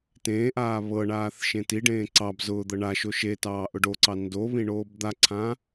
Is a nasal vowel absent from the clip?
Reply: no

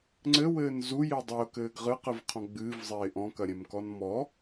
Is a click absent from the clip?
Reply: no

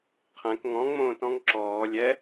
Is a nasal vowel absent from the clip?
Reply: no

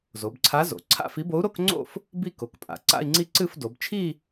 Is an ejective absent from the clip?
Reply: no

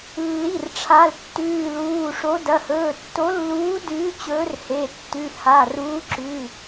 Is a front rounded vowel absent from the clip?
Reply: yes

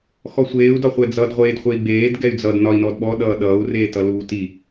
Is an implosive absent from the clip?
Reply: no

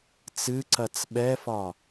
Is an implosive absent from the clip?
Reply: no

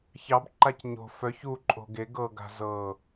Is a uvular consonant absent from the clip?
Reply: yes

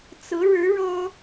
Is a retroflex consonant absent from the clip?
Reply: no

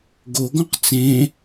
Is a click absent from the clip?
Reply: yes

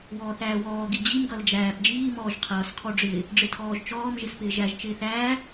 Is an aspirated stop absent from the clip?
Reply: no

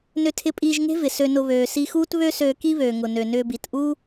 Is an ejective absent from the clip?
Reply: no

